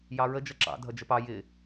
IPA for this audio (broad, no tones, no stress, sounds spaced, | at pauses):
j ɑ ɹ ə d͡ʒ ʌ ǁ ɑ̰ dʱ ʌ d͡ʒ ə p ɑ j ɪ